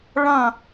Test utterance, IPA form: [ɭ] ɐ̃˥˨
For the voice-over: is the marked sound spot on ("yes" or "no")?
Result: yes